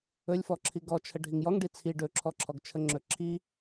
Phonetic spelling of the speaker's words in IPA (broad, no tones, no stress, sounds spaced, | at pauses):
ɵ lʲ f ɔ ǁʰ i ɡ ɔ t͡ʃʰ ə ɖʱ i ŋ j ɔ ŋ ɖ i t͡sʰ i ɖ ɵ ǁʰ ɔ ǁʰ ɔ ɡ t͡ʃʰ ə ŋ͡ǁ ɵ ǁʰ i